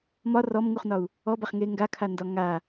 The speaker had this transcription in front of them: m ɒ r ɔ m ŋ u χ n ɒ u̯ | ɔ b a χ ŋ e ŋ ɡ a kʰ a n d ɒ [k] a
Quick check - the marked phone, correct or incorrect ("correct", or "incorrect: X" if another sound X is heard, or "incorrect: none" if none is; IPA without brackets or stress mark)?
incorrect: ŋ